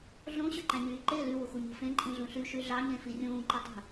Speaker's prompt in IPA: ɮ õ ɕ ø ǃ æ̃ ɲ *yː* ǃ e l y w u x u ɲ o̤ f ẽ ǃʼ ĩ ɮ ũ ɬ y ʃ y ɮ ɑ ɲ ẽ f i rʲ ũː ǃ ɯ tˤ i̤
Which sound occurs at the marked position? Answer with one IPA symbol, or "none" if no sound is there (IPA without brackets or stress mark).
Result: yː